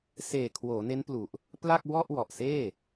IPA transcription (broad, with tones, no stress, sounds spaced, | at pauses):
s eː˨˩ kʰ w oː˩˦ n e˦˥ n p l u˨˩ ʔ | p l a˥˩ k̚ w ɔ˥˩ ʔ w ɔ˨˩ ʔ s eː˥˩